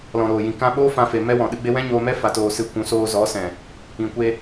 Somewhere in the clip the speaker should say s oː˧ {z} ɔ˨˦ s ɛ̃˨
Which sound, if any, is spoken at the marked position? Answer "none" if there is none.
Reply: z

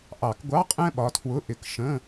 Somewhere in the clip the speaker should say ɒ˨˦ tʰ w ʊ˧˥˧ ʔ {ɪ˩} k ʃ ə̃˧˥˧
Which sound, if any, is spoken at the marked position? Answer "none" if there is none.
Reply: ɪ˨˦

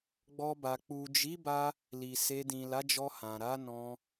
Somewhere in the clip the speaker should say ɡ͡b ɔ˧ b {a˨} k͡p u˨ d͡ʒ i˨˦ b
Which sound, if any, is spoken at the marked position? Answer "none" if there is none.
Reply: a˨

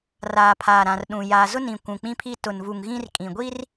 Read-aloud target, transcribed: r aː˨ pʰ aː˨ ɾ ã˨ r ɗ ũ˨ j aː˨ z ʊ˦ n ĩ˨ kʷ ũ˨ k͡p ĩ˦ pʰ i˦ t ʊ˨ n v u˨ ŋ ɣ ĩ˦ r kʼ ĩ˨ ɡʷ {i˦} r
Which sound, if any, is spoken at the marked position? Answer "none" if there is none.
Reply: i˦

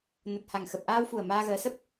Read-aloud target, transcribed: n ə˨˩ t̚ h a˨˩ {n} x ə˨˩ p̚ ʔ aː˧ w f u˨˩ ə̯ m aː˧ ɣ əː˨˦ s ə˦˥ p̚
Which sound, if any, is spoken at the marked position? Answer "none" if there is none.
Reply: ŋ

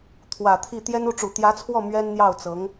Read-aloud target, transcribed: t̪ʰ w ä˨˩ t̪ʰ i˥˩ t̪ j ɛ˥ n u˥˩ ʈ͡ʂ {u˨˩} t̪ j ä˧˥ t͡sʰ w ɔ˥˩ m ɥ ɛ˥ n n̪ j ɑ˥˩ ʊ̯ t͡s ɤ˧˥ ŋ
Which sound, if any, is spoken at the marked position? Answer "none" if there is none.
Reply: u˨˩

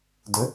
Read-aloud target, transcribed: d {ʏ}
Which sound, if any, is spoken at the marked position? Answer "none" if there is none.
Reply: ʏ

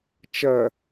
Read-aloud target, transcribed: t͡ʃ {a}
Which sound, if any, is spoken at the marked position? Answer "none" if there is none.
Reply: ɐ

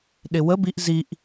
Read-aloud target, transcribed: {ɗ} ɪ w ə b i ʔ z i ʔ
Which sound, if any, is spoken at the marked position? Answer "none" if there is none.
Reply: ɗ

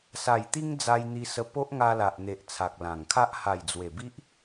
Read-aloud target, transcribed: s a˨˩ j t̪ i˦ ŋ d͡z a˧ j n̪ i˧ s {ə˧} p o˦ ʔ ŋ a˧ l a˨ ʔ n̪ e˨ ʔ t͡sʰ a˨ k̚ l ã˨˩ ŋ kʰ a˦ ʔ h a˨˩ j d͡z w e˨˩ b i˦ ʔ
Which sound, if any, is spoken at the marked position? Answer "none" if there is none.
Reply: ə˧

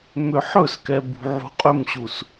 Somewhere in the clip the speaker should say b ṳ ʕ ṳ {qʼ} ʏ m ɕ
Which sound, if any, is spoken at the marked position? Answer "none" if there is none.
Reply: qʼ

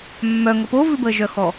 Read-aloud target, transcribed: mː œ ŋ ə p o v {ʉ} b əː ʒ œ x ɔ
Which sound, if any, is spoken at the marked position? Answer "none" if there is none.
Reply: ʉ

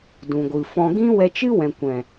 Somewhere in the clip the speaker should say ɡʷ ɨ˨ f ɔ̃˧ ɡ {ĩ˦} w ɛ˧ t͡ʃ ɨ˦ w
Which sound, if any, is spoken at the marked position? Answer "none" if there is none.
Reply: ĩ˦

